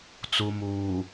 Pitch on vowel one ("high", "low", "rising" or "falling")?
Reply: low